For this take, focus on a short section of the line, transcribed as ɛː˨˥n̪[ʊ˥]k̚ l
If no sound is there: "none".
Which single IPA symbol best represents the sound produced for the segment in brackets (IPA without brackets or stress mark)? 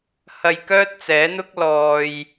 ʊ˥